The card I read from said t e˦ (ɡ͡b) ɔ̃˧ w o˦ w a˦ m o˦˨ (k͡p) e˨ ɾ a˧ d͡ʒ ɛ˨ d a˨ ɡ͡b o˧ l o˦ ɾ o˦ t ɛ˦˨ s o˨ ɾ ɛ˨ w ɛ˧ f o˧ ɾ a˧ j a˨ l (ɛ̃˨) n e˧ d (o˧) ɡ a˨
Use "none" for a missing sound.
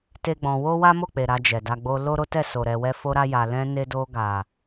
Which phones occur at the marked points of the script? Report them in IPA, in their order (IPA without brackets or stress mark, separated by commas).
ɡ͡b, k͡p, ɛ̃˧, o˧